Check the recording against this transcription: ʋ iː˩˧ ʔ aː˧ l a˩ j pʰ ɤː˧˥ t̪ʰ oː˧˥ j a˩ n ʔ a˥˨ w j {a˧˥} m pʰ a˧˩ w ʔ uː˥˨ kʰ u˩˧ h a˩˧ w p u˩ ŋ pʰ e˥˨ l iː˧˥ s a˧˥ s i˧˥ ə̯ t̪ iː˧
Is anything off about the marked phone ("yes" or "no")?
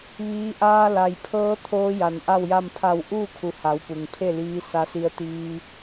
yes